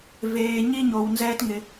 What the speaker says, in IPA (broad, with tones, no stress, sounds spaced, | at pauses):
v eː˩ ɲ i˧ ɲ o˩ w n z ɛː˧ t ŋ ɪ˩